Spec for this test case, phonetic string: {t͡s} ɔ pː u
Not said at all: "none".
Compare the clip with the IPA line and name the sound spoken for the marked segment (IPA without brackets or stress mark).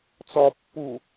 t͡s